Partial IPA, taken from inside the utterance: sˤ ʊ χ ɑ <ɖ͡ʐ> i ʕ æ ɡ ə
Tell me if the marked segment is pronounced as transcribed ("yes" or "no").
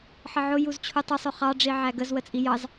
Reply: yes